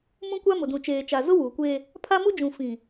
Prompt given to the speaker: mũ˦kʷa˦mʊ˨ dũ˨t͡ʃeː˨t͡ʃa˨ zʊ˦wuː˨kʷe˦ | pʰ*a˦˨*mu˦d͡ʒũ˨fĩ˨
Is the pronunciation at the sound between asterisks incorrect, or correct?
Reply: incorrect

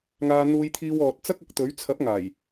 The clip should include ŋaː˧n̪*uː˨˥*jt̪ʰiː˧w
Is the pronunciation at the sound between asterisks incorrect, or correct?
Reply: incorrect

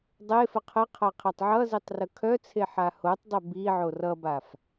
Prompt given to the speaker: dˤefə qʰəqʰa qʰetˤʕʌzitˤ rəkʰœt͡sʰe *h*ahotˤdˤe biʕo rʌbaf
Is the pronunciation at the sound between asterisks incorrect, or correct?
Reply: incorrect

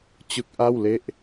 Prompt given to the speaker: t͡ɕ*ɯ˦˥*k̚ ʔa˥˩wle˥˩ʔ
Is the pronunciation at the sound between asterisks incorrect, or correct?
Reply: correct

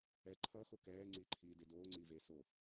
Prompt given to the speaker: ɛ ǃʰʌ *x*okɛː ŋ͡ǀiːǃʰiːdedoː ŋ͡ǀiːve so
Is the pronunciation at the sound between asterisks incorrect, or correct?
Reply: correct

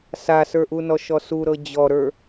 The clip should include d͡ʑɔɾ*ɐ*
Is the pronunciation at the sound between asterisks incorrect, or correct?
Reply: incorrect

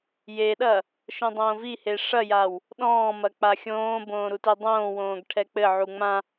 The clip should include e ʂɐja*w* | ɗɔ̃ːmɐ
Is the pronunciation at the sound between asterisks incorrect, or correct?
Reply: correct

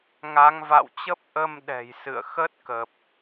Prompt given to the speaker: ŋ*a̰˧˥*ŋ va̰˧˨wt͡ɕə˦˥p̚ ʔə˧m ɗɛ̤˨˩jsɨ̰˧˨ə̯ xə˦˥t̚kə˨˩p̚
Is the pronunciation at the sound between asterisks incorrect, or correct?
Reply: incorrect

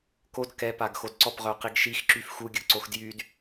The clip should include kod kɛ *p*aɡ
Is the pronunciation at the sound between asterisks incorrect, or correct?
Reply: correct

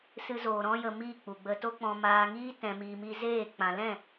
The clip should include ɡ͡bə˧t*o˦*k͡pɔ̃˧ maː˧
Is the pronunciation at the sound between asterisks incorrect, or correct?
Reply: correct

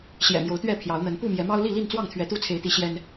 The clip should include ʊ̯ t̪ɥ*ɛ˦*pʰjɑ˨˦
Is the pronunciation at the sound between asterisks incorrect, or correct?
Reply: incorrect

